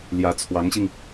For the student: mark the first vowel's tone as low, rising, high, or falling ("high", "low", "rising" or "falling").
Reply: rising